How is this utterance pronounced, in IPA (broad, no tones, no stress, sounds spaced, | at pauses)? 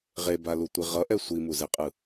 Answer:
ʁ e b a l u tʷ i ʁ ʌ ʔ ɛ sʷ i m u z e qʼ ɯ